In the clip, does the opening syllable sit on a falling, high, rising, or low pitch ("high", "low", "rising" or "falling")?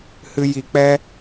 high